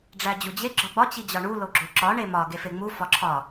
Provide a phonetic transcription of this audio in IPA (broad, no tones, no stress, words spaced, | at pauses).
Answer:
ɖ͡ʐæd͡ʑud͡ʑe ɡ͡ǁɒɡ͡bɒ t͡ɕid͡ʑɒɳu loɡ͡ǁoǁɒ ɳemɒ ɡefeŋ͡mu fɒǁʰɒ